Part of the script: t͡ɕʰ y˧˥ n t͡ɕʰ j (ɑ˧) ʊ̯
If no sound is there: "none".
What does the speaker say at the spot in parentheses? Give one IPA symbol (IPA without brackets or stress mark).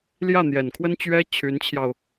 ɑ˧